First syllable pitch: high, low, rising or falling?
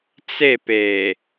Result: falling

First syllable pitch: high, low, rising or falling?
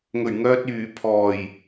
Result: low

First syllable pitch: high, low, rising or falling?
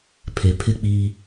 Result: low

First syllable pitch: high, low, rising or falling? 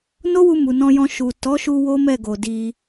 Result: high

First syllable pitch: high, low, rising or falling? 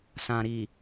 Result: low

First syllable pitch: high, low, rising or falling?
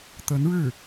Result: rising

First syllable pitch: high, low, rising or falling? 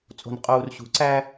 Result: low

